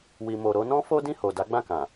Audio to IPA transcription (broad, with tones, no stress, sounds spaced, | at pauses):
w i˨ m o˨ ɾ o˧ n ɔ̃˦ f o˦ d ĩ˦˨ h o˨ d a˨˦ ɡ͡b ã˦˨ k ã˨